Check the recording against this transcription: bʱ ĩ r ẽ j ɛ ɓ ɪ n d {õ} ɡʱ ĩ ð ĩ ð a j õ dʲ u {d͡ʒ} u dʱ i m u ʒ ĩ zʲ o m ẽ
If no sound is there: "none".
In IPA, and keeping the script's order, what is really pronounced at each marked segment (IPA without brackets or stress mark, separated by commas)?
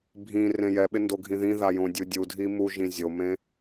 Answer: o, dʲ